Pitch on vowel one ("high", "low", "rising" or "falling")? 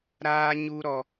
high